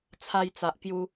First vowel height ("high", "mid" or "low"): low